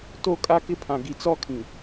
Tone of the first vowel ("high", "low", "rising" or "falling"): falling